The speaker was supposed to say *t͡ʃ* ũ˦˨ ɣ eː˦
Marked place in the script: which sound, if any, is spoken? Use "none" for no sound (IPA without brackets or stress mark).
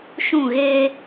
ʃ